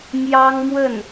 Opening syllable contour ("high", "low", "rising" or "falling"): high